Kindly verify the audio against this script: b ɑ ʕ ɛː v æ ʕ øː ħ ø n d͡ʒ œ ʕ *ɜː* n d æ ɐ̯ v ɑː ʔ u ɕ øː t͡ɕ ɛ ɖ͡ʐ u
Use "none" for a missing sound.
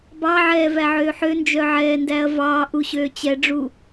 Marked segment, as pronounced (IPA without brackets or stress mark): ɛː